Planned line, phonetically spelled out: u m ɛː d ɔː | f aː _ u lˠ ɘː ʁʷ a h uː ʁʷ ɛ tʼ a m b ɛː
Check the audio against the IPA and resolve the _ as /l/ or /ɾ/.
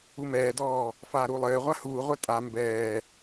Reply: ɾ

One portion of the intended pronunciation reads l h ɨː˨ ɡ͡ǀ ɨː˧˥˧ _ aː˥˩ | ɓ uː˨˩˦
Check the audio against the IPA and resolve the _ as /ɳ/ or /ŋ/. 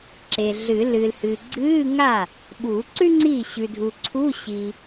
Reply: ŋ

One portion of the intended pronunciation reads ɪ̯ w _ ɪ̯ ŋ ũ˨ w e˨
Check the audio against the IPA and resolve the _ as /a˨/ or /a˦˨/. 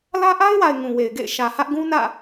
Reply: a˨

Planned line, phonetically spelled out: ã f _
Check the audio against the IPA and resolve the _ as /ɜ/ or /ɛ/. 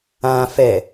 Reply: ɛ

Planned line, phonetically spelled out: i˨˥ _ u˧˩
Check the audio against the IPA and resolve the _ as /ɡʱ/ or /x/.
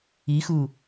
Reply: x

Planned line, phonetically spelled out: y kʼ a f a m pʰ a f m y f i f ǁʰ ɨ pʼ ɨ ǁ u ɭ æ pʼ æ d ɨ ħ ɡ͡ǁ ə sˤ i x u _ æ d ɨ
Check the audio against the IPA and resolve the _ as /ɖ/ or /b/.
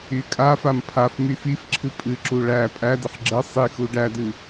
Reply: ɖ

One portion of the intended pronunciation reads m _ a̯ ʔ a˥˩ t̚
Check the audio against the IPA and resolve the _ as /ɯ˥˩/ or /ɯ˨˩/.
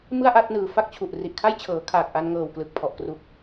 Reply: ɯ˥˩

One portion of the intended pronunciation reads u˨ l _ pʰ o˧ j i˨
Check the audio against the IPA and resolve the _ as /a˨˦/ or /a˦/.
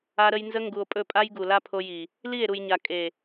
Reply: a˦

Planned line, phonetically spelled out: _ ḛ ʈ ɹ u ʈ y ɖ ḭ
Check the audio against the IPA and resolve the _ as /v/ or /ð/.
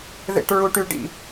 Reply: ð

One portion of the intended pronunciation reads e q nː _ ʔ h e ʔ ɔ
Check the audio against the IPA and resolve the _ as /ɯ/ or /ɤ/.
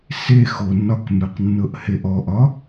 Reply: ɤ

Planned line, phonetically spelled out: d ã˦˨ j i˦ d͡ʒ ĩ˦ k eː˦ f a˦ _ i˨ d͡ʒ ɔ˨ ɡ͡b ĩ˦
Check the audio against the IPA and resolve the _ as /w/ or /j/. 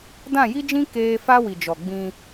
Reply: w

